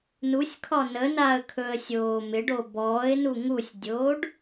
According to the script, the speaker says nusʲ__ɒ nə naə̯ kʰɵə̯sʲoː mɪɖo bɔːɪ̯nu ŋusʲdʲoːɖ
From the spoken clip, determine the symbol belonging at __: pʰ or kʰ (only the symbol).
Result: kʰ